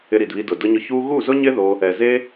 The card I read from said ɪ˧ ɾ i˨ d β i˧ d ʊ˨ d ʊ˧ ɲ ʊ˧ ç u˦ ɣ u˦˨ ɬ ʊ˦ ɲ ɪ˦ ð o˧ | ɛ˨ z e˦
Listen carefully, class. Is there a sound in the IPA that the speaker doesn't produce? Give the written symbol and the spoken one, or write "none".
ɬ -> z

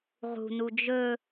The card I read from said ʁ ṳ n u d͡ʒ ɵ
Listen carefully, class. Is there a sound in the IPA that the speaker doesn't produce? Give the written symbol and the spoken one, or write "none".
none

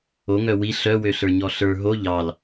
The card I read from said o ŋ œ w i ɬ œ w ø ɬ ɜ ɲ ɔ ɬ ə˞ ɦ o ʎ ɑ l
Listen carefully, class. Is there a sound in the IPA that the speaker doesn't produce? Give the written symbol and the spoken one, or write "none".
ɜ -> ə˞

